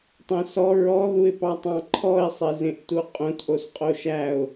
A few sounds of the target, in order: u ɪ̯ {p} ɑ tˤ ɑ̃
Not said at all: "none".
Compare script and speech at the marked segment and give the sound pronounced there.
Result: p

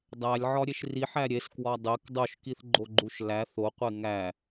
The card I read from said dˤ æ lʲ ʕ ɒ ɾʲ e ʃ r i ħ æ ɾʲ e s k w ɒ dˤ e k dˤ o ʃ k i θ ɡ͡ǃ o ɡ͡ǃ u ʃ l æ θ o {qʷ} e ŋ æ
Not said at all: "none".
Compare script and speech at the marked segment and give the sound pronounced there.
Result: qʷ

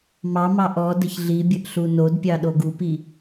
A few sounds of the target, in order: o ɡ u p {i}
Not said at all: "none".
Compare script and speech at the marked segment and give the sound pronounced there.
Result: i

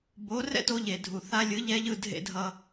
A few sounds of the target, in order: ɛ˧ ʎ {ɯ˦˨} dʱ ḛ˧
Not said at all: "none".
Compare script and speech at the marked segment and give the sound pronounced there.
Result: ɯ˧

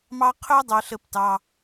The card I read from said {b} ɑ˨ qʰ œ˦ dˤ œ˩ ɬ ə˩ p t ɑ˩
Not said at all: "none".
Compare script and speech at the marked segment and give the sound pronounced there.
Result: m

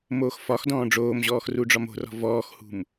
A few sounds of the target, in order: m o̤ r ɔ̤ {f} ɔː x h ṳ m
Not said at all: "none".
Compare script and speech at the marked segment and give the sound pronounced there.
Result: v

